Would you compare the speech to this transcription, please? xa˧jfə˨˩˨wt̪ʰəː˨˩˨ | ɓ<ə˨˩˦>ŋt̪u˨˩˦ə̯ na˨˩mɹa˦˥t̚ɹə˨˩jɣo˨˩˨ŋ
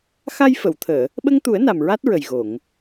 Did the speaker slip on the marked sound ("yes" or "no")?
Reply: yes